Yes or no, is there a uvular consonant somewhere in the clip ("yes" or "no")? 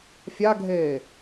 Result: no